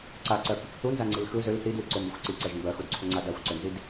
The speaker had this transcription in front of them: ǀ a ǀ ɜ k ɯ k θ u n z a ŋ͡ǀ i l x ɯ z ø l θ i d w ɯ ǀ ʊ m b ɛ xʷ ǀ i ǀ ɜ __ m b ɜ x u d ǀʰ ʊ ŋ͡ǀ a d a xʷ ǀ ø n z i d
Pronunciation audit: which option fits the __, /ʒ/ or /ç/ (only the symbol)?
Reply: ʒ